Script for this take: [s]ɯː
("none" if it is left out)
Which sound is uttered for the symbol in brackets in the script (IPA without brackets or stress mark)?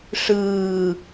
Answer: ʂ